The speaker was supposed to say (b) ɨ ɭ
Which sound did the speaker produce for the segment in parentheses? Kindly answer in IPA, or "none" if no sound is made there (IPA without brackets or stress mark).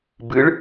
b